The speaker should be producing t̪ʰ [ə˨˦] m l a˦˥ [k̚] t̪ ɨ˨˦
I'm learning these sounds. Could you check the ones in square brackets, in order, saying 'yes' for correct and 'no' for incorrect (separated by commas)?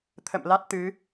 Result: no, no